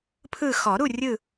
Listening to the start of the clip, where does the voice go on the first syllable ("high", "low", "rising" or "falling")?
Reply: falling